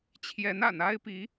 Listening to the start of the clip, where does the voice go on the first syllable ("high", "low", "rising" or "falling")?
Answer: rising